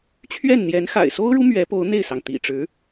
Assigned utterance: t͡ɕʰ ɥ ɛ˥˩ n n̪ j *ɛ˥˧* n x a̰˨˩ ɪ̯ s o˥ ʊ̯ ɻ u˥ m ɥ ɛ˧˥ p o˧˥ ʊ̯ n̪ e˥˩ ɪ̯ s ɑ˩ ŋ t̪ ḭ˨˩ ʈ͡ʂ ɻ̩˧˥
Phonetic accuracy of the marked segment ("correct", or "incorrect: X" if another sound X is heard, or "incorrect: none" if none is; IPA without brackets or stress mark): incorrect: ɛ˧˥